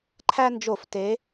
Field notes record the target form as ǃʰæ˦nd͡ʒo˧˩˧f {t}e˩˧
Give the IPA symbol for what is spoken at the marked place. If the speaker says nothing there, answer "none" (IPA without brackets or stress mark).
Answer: t